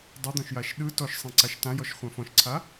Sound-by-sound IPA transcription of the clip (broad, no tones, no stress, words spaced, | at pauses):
dˤed̪ɔ̃ʃjaʃ ɗɯ tɔʃsˤẽǀaʃ tãjɔʃχʷã fɔ̃ʃǀʰa